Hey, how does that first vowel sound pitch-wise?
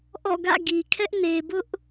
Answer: falling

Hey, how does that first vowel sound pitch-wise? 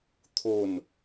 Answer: falling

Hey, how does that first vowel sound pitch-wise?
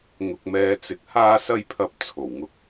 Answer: low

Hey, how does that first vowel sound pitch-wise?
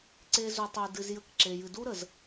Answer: high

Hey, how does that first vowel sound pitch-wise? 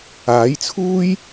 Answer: rising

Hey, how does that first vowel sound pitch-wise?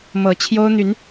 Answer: rising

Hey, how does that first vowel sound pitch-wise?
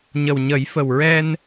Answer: low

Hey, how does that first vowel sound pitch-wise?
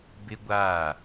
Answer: high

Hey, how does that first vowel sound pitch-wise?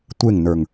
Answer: falling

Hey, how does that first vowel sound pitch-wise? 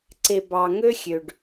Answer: low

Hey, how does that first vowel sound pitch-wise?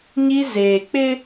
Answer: high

